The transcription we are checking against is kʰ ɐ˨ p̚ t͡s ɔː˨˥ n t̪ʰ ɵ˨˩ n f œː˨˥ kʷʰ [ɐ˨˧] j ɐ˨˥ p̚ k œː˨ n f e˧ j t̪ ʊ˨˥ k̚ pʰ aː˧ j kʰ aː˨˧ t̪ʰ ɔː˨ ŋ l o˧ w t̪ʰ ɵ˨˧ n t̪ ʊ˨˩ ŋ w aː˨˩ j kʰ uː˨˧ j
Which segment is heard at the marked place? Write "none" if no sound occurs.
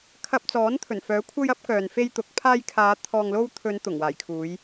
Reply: ɐ˧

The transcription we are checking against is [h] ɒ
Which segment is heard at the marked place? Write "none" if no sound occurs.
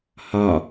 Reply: h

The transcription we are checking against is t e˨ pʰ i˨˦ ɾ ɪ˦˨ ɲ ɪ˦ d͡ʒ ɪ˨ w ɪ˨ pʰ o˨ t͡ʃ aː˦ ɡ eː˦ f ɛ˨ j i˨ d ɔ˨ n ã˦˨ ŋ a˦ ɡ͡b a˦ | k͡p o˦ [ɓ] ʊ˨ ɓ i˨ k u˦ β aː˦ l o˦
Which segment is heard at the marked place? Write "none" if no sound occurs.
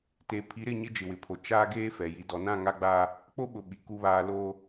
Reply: ɓ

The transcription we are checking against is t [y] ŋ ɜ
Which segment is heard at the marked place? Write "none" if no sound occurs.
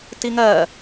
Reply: i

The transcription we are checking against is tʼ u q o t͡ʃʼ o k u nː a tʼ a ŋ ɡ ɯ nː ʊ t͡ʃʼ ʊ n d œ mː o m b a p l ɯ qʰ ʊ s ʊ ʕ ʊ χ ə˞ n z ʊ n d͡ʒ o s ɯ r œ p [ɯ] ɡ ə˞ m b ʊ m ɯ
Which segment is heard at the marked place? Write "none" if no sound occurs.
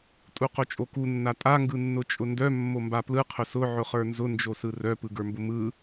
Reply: ɯ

